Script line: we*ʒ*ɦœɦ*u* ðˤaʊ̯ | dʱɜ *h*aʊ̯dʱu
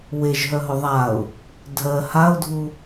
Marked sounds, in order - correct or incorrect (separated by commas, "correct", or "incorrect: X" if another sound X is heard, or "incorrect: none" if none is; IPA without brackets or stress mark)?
correct, incorrect: ʊ, correct